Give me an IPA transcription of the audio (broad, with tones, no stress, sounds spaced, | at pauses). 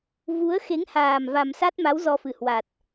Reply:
v u˨˦ ə̯ x e˨˦ ŋ h aː˨˩ m v a˨˩ m s a˦˥ t̚ m a˨˦ w z ɔ˧ f ɨ˨˩ h w a˨˩ t̚